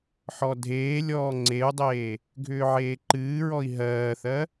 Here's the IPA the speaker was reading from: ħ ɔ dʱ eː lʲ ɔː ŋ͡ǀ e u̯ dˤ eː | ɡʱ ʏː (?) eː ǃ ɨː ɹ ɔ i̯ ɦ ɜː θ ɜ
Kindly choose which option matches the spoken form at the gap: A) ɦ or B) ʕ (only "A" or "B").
B